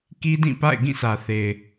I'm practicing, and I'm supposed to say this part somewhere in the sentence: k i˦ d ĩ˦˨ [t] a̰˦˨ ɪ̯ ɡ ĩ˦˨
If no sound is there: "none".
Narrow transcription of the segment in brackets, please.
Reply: p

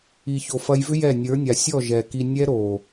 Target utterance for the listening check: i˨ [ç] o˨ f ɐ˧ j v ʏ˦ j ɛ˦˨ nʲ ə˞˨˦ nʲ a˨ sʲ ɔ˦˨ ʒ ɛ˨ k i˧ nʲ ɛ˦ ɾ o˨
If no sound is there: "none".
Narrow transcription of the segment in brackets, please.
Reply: ç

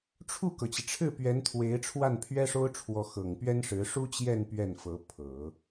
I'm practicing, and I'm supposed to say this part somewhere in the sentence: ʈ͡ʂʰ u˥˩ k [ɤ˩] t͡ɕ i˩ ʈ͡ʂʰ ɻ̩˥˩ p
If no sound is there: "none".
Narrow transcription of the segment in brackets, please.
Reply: ɤ˩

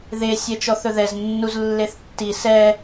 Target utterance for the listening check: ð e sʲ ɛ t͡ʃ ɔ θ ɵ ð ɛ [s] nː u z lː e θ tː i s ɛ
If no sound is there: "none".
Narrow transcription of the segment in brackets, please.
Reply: z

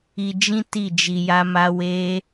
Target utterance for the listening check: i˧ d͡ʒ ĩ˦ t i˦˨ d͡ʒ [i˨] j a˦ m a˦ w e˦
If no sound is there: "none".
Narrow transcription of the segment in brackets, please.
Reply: i˧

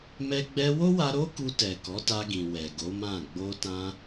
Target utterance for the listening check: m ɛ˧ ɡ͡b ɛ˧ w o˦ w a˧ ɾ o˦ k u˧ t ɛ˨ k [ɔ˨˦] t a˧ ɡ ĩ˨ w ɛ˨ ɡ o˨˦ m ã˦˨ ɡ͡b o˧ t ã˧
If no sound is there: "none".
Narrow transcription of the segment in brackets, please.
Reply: ɔ˨˦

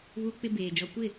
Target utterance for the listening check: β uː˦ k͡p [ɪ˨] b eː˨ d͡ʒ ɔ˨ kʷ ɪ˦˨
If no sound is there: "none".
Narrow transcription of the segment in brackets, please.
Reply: ɪ˦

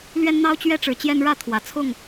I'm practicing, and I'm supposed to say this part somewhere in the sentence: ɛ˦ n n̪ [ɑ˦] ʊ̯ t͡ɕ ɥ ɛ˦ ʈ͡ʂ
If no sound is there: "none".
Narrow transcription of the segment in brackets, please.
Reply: ɑ˦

